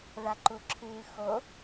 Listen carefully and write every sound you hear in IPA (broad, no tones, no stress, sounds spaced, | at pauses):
ð a ǃ u ǁʰ ɨː x o